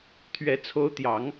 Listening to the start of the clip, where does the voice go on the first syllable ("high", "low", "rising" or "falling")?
rising